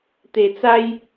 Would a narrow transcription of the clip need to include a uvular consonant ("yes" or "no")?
no